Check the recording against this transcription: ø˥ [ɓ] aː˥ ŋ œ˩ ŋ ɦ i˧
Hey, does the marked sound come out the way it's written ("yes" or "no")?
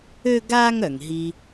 no